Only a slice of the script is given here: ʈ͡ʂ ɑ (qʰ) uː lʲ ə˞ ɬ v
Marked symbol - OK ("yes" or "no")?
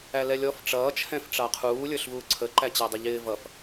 yes